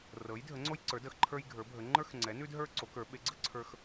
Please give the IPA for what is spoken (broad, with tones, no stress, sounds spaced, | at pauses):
r ɤ˩˥ j dʱ ə˩˥ ŋ͡ǀ o˦ j ǀ ə˞˩˥ d ə˩˥ x ǃʰ ə˞˦ j ɡʱ ə˞˩˥ bʱ ə˩˥ ŋ͡ǃ ə˞˦ x ŋ͡ǀ ɛ˩˥ n ʉ˦ d ɦ ə˞˦ ǀ o˩˥ k ə˞˩˥ ɓ e˩˥ ɡ͡ǀ ə˦ ǀʰ ə˞˦ x